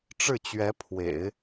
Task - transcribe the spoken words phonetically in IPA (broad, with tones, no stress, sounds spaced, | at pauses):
ʈ͡ʂ ɻ̩˥˩ t͡ɕ ɥ ɛ˧˥ pʰ w ḛ˨˩˦ ɪ̯